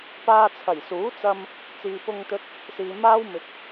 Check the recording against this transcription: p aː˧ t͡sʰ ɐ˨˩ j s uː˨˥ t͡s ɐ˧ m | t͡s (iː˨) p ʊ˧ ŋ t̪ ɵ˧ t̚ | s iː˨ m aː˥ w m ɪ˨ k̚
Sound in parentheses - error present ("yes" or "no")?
no